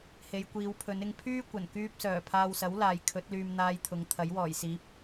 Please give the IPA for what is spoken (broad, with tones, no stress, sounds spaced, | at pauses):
h e˨˧ j kʷ iː˨˧ w pʰ ɵ˨˧ n ɪ˧ ŋ pʰ yː˥ kʷ ɐ˨˩ n k yː˧ p̚ s œː˨˩ pʰ aː˧ w s ɐ˨˥ w l aː˨ j kʰ ɵ˨˥ t̚ l yː˧ m n̪ aː˧ j t̪ʰ ʊ˨˧ ŋ t̪ʰ ɐ˨˥ j w ɔː˨˩ j s iː˨˥ p̚